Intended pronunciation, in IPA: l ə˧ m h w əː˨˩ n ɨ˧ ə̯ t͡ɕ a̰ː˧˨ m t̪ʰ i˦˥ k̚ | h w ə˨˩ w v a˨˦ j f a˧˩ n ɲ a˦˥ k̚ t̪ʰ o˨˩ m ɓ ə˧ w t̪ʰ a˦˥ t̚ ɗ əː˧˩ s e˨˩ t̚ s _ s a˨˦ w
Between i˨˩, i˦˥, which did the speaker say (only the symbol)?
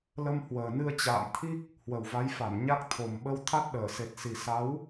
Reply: i˨˩